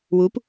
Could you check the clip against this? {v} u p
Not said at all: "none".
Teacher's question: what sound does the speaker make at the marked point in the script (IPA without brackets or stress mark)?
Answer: w